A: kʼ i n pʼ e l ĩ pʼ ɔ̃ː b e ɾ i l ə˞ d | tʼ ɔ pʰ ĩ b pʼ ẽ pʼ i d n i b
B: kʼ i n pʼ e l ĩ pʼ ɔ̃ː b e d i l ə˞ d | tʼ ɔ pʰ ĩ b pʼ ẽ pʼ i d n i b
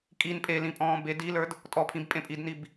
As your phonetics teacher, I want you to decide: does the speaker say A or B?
B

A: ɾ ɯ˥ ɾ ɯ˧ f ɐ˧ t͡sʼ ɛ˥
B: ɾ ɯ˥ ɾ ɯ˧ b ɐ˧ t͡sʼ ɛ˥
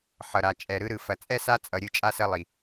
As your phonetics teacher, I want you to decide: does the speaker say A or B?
A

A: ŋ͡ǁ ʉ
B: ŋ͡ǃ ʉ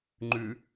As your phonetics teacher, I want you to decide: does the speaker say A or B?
B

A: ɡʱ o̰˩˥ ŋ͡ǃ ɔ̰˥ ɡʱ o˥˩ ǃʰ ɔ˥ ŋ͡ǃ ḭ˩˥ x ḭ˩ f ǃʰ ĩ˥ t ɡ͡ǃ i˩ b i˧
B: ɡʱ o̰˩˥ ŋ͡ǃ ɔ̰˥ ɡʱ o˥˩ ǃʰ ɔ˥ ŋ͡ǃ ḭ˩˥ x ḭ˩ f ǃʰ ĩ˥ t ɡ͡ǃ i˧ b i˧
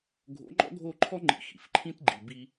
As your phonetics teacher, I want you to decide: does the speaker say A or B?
A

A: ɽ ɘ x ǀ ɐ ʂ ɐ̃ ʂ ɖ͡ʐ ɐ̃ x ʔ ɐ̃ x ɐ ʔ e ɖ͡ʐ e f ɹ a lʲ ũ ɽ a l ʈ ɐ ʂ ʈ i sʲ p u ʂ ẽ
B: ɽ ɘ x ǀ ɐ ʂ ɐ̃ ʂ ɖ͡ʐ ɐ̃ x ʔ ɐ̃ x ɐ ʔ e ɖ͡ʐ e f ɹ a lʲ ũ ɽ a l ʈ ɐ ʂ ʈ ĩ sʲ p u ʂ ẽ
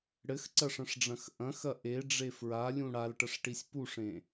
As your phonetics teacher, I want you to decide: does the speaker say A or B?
A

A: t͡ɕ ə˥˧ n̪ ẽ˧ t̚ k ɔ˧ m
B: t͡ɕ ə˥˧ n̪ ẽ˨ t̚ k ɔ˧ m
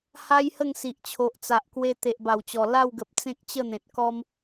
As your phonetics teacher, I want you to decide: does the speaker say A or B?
B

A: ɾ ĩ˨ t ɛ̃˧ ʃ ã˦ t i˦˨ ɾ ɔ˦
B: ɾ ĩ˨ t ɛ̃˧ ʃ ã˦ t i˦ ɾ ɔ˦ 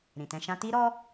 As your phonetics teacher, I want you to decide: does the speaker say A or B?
B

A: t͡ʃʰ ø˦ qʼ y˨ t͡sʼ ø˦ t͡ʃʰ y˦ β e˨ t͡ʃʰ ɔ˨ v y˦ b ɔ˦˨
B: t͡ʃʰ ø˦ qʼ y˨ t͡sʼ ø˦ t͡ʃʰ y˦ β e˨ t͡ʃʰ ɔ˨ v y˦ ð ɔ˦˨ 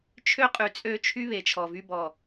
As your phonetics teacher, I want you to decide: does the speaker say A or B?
A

